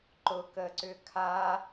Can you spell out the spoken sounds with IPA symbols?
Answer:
ǃ ʊ k ə ǀ ʏ kʰ a

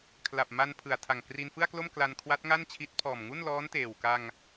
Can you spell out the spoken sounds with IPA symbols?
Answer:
kʰ l a˨˩ p̚ m a˧ n pʰ ɯ˨˩ a̯ tʰ a˨˩ ŋ k r i˧ n f ɯ˥˩ a̯ k l o˥˩ m k l a˧ n kʰ w a˦˥ t̚ ŋ a˥˩ n t͡ɕʰ i˦˥ t̚ pʰ ɔː˨˩ m ŋ u˥˩ n l ɔː˦˥ n t eː˨˩ w k a˧ ŋ

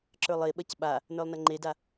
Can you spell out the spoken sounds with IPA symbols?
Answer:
ǁ ə˞ lˠ e ɓ ɐ c ɓ a | n ə˞ lˠ n ɐ ŋ͡ǃ e d a

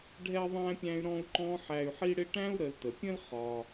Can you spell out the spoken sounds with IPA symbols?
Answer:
ɖʱ ɛ˥ ðˤ æ̃˦ pʲ æ̃˦ y̯ ɾ ɔ̃˦ u̯ ǃ ɔ̃˦ ħ æ˨ y̯ ħ i˦ ɽ ɪ˦ ʈ æ̃˥ u̯ ɾ ə˨ l t ə˩ pʲ ə̃˥ l χ ɒ˩

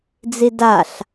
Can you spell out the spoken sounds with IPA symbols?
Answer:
d͡z i d a ɬ

